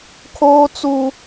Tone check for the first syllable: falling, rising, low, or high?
high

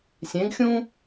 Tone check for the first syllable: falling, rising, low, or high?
rising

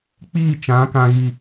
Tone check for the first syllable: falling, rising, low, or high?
falling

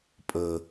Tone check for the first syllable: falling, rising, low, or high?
low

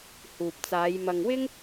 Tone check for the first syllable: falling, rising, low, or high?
low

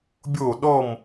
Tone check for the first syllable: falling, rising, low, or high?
falling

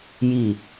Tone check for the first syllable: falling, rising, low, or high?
falling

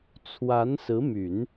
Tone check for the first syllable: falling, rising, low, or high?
rising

